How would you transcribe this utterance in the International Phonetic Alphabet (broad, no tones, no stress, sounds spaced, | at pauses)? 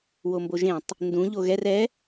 w o m b o ʒ ẽ tˤ | n d ũ ʎ o ɣ ɛ r ɛ